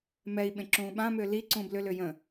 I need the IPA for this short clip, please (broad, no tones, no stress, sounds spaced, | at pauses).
m ɛ i̯ ɓ ẽ ǁ ũː ɓ ã m ʏː l i ǀ ũː b l ʏ l ʏː j ə̃